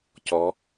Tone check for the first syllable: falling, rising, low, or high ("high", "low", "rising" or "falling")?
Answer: rising